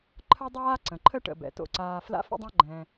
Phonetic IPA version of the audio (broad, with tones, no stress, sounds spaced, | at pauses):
ǃʰ ə˥ dˤ aː˥ ǀ ə̃˩ ǃʰ ə˥ ʈ ə̰˩ b ɛ̰˩ t o̰˨ ǀ aː˨ f l a̰˥ f ə̰˥ dˤ ã˥ ɡ͡ǃ ɛ̃˨